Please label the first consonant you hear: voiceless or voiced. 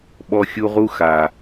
voiced